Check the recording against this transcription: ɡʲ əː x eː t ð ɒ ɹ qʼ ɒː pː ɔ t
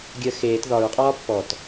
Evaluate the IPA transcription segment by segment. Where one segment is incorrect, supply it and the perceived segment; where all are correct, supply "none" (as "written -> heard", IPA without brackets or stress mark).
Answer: none